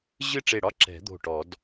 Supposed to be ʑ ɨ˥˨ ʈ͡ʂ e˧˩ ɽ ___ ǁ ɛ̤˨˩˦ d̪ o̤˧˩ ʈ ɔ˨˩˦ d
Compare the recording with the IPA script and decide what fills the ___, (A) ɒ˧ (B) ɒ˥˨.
B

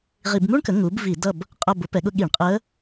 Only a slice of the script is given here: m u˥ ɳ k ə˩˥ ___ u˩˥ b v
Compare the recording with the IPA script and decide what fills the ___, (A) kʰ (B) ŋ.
B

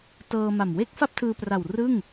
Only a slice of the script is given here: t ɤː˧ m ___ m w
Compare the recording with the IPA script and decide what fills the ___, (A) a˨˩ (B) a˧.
A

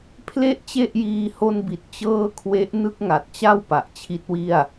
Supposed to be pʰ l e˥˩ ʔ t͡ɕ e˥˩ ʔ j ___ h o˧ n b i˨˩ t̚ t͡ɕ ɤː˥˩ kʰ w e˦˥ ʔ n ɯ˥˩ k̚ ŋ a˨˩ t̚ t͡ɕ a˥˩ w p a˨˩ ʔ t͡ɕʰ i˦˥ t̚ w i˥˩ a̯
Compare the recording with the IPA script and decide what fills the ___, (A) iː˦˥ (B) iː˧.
B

